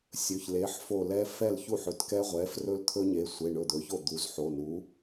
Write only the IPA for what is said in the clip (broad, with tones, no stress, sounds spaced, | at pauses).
sʲ ɵ˩˧˩ ç l e˩˧˩ ħ f o˧˩ l ɛ˦˥ f ɛ˥˩ l ç u˥˩ ħ ɵ˩˥ t k ɛ˦˥ ʁʷ ɛ˩˥ f r ɵ˦˥ l t̪ʰ ɵ˦˥ ɲ e˩˧˩ sʷ e˩˧˩ ɳ ɵ˧˩ d̪ ɵ˩˥ ç o˥˩ d̪ u˩˥ z ħ o˩˧˩ n u˩˥